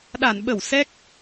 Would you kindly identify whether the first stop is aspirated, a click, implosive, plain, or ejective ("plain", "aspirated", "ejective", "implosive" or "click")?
implosive